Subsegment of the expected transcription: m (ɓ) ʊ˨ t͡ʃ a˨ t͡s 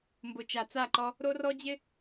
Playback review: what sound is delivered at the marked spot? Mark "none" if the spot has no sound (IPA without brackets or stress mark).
b